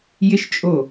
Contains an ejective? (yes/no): yes